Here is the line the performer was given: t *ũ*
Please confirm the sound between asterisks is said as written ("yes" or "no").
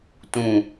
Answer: yes